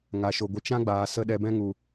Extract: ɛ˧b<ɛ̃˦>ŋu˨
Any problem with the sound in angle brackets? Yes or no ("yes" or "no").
no